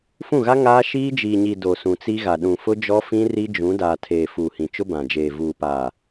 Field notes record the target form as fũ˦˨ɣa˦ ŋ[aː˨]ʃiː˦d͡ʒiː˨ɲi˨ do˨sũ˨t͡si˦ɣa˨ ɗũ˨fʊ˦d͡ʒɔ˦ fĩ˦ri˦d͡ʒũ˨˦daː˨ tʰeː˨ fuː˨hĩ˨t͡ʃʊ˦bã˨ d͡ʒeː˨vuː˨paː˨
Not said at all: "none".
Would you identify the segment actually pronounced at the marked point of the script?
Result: aː˦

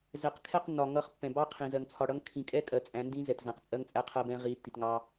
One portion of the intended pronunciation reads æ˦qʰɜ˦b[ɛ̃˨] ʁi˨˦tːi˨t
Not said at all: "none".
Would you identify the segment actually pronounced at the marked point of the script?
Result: ɛ̃˦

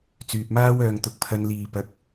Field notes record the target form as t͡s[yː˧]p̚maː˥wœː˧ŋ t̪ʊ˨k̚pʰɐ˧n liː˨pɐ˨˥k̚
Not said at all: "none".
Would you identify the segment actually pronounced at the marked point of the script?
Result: yː˧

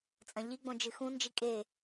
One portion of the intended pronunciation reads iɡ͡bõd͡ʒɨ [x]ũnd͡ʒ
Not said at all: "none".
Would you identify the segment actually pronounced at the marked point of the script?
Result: x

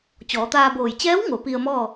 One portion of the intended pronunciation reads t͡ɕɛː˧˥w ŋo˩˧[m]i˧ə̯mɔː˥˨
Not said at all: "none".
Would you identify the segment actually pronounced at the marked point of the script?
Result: p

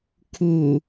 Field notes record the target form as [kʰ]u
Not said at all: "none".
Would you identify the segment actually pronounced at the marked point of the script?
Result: kʰ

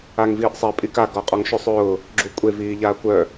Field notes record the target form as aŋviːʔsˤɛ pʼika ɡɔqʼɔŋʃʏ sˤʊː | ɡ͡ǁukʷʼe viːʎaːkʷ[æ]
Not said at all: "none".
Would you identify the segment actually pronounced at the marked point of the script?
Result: œ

